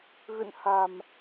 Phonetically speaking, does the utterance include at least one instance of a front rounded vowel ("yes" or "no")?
no